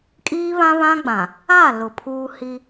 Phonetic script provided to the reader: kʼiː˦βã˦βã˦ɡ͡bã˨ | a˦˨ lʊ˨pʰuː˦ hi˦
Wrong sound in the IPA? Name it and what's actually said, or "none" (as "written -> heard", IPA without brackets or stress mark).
none